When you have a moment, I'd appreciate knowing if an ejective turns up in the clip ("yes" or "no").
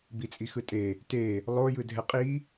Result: yes